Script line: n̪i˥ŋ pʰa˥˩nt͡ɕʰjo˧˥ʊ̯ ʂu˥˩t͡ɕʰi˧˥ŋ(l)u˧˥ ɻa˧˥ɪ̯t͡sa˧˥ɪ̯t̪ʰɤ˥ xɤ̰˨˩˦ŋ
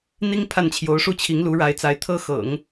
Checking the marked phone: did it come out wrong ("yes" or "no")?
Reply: no